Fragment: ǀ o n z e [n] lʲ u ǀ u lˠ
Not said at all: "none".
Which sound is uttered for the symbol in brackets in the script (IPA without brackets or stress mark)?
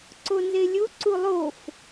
none